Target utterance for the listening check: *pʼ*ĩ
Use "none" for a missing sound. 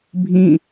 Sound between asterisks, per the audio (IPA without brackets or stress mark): bʱ